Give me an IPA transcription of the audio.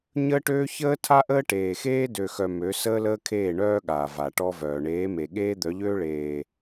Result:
ɲ əː˦ ʈ øː˦ ç əː˦ tʰ a˦ ʔ əː˦ ʈ eː˨ x eː˦ d ø˨ x œ˨ m ø˨˦ s əː˦ l əː˦ kʰ eː˦˨ ɳ œː˦ ɠ aː˨ v a˨ ʈ ɔ˦ v œː˨ ɳ eː˨˦ m e˨ ɠ eː˦ d̪ œ˨˦ ʎ øː˦ ɭ eː˨

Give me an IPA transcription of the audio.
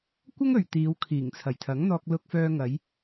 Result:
kʷ ɐ˥ ŋ ɵ˨ ɥ t̪ iː˨˧ w kʰ iː˨˩ ŋ t͡sʰ ɐ˨˩ j t̪ʰ ɐ˨˥ ŋ n̪ ɔː˧ k̚ l ʊ˧ k̚ f œː˧ ŋ ɐ˨˧ j

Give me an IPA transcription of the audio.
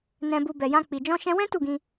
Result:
n ɛ̃˧ b u˧ b ɛ˨ j ã˧ k͡p i˨ d͡ʒ ɔ̃˧ ʃ ɛ̃˧ w ɛ̃˦ t u˦˨ ɡ ĩ˧

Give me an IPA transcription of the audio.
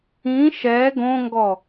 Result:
ĩ ʃ ɛ ɡ õ ŋ ɡ ɔ

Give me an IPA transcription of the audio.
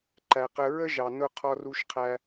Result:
ǃ æ˩ q ə˧ ɹ ə˥ ʒ ɑ˩ n ʊ˧ qʰ ɔ˧ r u˧ ʃ qʰ æ˧

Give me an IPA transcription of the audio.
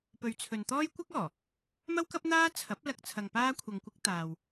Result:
p ɵ˨˧ ɥ t͡sʰ ɵ˨ n t̪ ɔː˥ j kʷ ɐ˥ k̚ ɔː˨˩ | m ɐ˥ w k ɐ˥ p̚ n̪ aː˥ t͡sʰ ɐ˨˥ p̚ l ɐ˧ k̚ t͡sʰ ɐ˧ ŋ p aː˥ kʷʰ ɐ˧ ŋ kʷ ɪ˥ k̚ t̪ aː˨ w

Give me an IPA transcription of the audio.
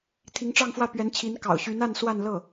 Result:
t̪ʰ i˧˥ ŋ ʈ͡ʂ ɑ˥˧ ŋ f w ä˥˩ p ɥ ɛ˧˥ n t͡ɕʰ i˧˥ n k ɑ̰˨˩ ʊ̯ ɕ y˧˥ n a˥˧ n s w a˥˧ n l ɤ˥˩

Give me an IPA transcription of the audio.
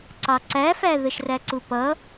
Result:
ǀ ɑ ǀ æ f æ ð ə ʃ r æ ǀ u p ʌ

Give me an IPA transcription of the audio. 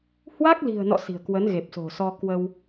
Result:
h w a˦˥ k̚ l i̤˨˩ ə̯ n ɔ̰˧˨ s i̤˨˩ ə̯ k w ə˨˦ n ɣ e˨˩ p̚ s o̤˨˩ s ɔ˧ k w ə˧ w

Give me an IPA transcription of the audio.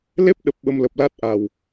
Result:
l e˦˥ p̚ ɗ ə˨˩ p̚ ɓ ə˧ m l ə˨˩ p̚ l a˦˥ t̚ ʔ a˨˩ w

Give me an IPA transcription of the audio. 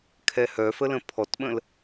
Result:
kʰ ɛ h œ f ə l ə̃ pʰ ɔ t ɓ ə̃ l

